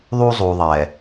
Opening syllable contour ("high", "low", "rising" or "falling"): high